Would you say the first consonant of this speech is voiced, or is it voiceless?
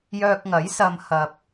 voiced